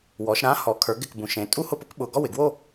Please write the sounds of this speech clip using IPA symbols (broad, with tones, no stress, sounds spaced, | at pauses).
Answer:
w ɔ˩˧ ʃ ɾ ã˧˥ h ɔ˩˧ kʰ ə˞˩˧ ɡ ɪ˧˩ k b ũ˩ ʃ ẽ˩˧ tʼ u˥˧ h ʊ˥˧ p ʊ˧˥ k ɓ ʊ˧˩ ɡ ɔ˥˧ w ɪ˩ ɡ w o˥˧